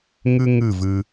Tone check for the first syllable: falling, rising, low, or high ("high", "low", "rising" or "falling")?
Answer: high